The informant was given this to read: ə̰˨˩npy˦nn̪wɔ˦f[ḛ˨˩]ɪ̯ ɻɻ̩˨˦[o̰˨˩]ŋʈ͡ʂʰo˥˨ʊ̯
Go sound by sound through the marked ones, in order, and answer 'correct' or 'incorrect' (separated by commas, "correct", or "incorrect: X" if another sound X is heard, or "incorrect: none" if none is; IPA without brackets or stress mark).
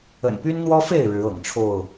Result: incorrect: e˥˨, incorrect: ɤ̰˨˩